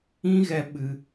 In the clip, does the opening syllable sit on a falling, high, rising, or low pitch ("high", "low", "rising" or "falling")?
high